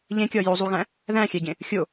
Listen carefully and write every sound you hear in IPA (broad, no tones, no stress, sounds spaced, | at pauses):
ʎ ẽ kʲ ɒ j o zˤ u ɣ æ̃ | ð æ̃ xʲ æ ɟ ẽ | xʲ o